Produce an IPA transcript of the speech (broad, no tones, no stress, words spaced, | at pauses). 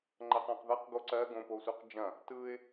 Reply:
ŋ͡ǃɐqæ̃qðɐq ɡoǀɜ ɡõposʷɜqd͡ʒɐ̃ | tɯɪ̯